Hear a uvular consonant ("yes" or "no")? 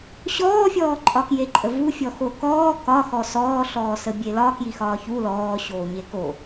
no